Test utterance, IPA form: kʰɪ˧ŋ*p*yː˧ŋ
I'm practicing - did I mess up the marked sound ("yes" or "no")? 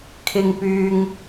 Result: no